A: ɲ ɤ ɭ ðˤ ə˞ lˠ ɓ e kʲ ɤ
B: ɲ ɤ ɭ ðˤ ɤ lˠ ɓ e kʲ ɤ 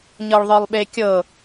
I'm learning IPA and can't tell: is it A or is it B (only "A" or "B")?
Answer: A